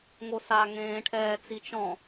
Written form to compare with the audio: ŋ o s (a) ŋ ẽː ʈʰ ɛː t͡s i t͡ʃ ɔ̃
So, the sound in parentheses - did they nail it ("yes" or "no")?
yes